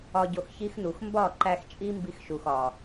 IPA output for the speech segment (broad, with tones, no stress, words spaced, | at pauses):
ɒ˧ɟo˧xçi˦xnu˨x mbɒ˦˨ǃæ˧xt͡ʃʼi˦ mbi˦xʃu˨x ɒ˨